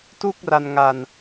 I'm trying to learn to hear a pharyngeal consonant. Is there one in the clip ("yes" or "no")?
no